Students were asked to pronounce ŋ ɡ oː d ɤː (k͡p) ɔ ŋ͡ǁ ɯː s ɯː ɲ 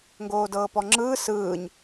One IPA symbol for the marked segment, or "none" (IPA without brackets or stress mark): p